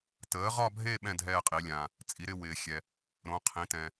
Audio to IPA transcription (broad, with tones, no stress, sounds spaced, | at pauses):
t əː˨˥ ʁ ɒ˥˧ bʱ e˥˧ ɓ ɛ̃˥˧ dʱ ɛː˥˧ qʼ i˨˥ lʲ ãː˧ | t͡sʼ i˨˥ ɾ ɪ˥˧ w ɪː˧ xʲ ɛ˧ | ɾ õ˨˥ qʰ ĩ˨˥ t ɛ̃˧